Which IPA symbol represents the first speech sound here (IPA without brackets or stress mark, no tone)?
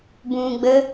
b